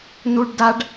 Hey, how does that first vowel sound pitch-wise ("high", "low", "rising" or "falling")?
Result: high